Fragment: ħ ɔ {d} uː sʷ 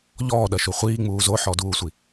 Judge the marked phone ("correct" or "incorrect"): correct